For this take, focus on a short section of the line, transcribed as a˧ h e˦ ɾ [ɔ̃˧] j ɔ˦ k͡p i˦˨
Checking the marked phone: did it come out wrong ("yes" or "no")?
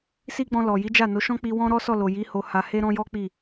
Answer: yes